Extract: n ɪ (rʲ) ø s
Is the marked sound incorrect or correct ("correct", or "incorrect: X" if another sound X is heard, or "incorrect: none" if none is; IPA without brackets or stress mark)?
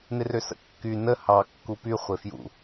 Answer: incorrect: r